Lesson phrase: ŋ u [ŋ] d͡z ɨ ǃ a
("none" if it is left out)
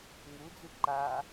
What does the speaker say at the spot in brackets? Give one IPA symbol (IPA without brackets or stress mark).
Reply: none